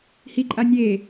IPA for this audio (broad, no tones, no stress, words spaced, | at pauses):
hiǃʼa nʲe